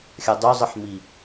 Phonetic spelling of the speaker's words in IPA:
xʲ ɐ dˤ u zˤ ɨ ħ m i

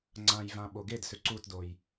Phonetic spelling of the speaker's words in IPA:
ŋ͡ǀ ã j v ã ɓ o ɡ e d s ʏ ǀ u t d o j

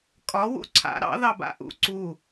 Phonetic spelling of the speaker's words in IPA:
kʼ ɒ w ṵ ǀʰ a̰ ɾ ɑ̰ ð ɑ b a̰ ʔ ṵ ǀ u

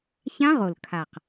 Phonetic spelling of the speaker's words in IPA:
ç ã˦˥ ʁ o˨˩ l kʰ a˨˩ q

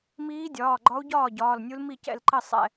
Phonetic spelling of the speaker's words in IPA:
m iː˧˥ dʲ ɒː˩˧˩ ɡ͡ǃ ɒ˧˥ u̯ ɟ ɒː˥˩ ɟ ɒː˩˧˩ l nʲ u˧˥ l m i˥˩ c ɛ̰˥˩ l ǃ ɘ˥˩ sˤ ɛ̰˥˩

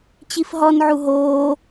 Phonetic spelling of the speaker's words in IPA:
t͡ɕ i f ɦ ɔ n ʕ u ɦ oː

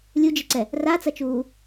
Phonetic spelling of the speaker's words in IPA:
lʲ u d͡ʒ i ǀ ɛ | r a t͡s ɐ t͡ʃ uː

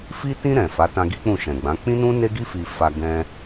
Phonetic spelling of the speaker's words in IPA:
f i˧ t ĩ˧ ɾ ɛ̃˨ f a˨˦ t ã˧ ɡ i˦ k͡p ũ˦˨ ʃ ɛ̃˨ ɡ͡b ã˨˦ k͡p ĩ˦ n ũ˦ n e˦ ɡ i˦ f i˧ f a˧ ɡ ɛ̃˧

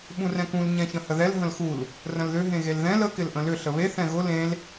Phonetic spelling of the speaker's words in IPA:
ɓ ũ r ɛ̃ k ũ l ɲ ɛ̃ ç ə̃ h ə ð ɛ l ɦ ə̃ l x u l | r ə̃ l ð ʏ ɦ ẽ ɣ e l ð ɛ̃ l ə k ɪ l ʔ ə̃ l ʏ ɬ ə β e θ ɛ̃ ɣ ʊ l ẽ l

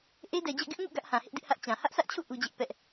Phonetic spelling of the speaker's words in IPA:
ʔ e˦ d ɛ˨ d͡ʑ ɛ̰˦˨ ɡ ɪ˦ ʔ ŋ ṵ˦˨ ɡ ä˦ ʔ h ã˨ h ɪ˦ ʔ d ɪ˦ ʔ h ä˦ ʔ t͡ɕ ã˨ h ä˦ ʔ s ä˦ ʔ t͡ɕʰ ṵ˦˨ ʔ u˦ d͡ʑ ɪ˦ ʔ p ɛ˦ ʔ

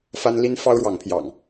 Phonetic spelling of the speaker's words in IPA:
f a˦ n l i˦ n f ɑ˦ ʊ̯ ɻ w ɑ˨˦ ŋ pʰ j ɑ̰˨˩ ŋ

